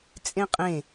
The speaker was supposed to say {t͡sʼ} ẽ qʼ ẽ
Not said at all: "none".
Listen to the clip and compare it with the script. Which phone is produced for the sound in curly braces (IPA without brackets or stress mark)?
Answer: t͡sʼ